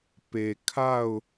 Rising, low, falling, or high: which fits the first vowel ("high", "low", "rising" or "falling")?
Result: low